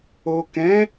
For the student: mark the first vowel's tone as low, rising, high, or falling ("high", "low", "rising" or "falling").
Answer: low